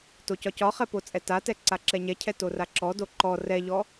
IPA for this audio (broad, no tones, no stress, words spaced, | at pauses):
tocɒcɒχɛ pot͡sʼɛtatɛ ǀaǁɛɲɛcʰɛ toraǁɔdo ǃɔ rɛʎɔ